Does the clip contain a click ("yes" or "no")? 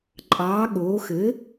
yes